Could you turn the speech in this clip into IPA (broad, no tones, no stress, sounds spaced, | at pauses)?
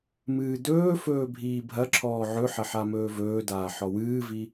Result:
m ɨː d ɵː f ɵː bʱ iː bʱ ɐ ǁʰ ɔː ʕ ɵ ħ ɐ ħ a m ɵː v ɵː d aː ħ ɔ w ɨː v i